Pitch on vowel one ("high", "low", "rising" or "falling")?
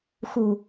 low